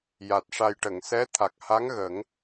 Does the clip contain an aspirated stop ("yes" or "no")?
yes